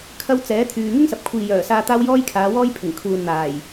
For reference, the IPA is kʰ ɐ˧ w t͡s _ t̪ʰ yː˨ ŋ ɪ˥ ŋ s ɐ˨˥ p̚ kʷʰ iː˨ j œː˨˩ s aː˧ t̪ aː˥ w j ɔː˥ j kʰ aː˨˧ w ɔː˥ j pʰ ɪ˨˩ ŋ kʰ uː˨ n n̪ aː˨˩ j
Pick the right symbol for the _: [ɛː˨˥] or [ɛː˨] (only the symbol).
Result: ɛː˨˥